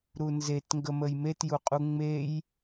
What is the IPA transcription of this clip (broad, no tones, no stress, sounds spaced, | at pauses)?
ɾ u n z e t ŋ ɡ ə m ə j m e t j u qʼ u ŋ͡m e j